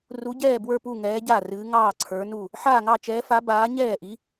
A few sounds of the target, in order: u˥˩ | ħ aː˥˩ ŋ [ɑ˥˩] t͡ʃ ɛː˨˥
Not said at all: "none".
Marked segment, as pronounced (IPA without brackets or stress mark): ɑ˥˩